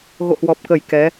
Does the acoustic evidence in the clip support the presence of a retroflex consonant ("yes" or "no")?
no